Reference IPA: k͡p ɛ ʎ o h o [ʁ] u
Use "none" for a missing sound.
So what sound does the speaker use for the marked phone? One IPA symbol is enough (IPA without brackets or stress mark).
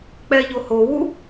w